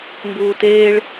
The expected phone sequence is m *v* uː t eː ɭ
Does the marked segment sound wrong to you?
yes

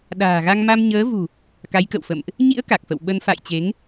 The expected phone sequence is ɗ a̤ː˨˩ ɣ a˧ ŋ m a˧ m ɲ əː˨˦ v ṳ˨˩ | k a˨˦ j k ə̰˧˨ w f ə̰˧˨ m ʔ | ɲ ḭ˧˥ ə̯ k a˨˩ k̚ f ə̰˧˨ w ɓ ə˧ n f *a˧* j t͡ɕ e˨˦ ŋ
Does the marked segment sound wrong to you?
yes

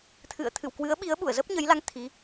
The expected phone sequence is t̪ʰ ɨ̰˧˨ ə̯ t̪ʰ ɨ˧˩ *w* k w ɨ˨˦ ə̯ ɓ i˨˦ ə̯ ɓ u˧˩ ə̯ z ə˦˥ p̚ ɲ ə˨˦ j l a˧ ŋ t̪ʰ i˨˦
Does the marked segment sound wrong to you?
no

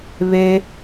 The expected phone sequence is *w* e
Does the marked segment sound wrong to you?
yes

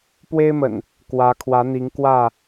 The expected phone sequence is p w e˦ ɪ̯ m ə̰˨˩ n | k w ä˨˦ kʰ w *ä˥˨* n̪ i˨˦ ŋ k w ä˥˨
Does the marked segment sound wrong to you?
yes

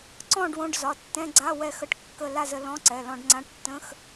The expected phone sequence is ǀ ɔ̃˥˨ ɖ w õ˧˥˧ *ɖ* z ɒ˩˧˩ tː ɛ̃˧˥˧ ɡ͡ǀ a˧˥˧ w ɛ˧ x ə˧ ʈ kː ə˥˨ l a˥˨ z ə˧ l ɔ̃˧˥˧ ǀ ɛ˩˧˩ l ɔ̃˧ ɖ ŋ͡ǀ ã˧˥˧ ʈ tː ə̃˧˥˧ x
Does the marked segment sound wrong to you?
no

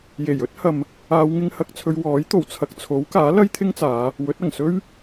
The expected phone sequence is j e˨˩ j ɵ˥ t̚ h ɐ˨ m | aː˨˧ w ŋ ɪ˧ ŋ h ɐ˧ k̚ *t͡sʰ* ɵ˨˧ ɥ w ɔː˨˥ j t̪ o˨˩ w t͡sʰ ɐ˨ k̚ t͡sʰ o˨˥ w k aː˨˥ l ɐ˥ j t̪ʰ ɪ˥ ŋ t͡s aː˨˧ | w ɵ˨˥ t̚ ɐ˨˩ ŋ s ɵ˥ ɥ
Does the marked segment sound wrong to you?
no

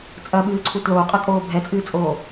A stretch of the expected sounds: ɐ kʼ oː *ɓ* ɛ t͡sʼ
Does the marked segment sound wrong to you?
yes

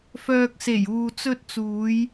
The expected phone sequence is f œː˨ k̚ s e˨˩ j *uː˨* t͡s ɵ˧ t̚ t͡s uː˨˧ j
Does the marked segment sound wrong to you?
no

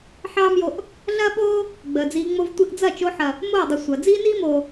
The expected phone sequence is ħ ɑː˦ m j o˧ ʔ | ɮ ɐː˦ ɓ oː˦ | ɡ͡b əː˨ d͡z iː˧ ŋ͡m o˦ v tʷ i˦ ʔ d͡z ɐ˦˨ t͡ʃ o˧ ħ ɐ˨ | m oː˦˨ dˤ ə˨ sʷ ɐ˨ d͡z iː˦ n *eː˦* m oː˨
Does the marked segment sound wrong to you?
yes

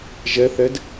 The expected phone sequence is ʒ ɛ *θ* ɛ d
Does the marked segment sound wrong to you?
no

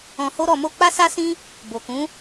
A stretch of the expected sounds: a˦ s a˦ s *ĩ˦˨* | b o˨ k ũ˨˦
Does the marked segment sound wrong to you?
yes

